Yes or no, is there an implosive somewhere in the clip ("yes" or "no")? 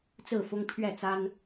no